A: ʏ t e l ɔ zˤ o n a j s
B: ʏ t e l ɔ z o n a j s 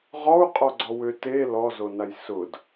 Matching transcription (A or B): B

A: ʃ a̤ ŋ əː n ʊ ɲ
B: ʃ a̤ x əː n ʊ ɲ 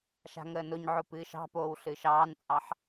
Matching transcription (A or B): A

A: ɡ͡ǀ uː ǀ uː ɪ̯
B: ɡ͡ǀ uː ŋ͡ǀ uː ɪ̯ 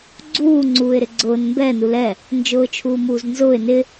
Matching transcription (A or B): B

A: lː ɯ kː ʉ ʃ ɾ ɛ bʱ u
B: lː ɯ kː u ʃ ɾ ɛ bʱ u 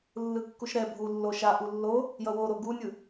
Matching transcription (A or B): B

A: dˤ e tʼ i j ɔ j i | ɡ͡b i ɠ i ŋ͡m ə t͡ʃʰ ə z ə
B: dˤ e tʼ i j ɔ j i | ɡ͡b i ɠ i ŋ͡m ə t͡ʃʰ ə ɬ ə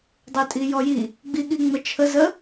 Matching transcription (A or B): A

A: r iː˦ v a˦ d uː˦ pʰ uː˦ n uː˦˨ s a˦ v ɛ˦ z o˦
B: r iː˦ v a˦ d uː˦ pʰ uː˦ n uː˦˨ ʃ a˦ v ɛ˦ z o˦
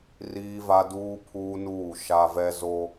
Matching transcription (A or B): B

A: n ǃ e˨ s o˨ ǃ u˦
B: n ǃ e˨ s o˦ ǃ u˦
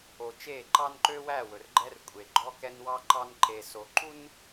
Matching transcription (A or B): A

